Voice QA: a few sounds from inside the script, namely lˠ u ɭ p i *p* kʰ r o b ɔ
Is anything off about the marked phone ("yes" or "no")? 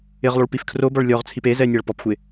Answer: yes